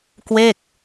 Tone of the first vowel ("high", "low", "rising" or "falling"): falling